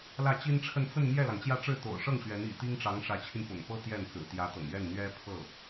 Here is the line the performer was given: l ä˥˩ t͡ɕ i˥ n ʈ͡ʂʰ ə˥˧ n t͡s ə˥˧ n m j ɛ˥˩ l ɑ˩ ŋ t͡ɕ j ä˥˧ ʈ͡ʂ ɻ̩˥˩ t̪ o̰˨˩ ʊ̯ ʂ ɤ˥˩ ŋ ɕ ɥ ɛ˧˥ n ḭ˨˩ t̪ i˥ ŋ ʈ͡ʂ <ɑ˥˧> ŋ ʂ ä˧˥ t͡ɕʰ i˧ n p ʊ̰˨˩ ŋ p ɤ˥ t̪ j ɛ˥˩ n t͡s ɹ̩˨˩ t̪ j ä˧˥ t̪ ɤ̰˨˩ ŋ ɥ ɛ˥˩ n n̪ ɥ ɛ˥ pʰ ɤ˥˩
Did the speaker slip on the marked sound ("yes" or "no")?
yes